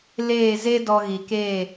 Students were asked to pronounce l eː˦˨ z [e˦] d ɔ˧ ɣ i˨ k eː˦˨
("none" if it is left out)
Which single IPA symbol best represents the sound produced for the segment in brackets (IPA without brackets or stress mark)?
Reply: e˦